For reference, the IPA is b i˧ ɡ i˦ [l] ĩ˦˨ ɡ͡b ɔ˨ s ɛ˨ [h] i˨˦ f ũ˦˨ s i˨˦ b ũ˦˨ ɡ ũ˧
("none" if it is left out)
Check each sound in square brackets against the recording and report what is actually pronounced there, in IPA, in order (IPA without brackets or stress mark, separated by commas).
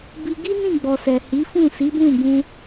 n, h